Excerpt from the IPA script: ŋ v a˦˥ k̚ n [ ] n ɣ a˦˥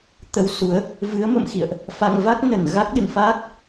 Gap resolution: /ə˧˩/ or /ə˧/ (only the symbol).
ə˧˩